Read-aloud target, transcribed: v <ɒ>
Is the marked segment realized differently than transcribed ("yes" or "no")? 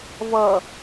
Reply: yes